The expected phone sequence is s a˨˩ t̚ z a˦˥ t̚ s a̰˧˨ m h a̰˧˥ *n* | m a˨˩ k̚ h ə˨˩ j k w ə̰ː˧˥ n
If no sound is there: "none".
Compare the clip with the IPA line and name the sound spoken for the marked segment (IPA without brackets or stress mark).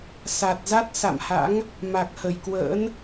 ŋ